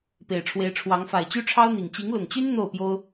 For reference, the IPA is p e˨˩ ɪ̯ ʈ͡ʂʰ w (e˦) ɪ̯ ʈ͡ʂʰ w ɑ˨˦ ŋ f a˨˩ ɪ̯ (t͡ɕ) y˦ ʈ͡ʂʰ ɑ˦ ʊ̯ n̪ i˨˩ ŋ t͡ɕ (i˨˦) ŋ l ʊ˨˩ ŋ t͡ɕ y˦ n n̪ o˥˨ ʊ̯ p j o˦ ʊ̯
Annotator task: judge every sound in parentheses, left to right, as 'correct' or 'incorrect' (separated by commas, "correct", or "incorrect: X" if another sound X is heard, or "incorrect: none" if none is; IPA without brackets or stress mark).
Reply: incorrect: e˨˦, correct, correct